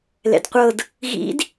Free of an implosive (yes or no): yes